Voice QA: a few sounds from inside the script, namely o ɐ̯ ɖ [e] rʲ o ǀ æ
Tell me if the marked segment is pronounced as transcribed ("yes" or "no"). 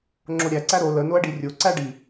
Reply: no